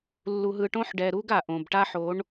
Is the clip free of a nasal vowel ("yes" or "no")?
no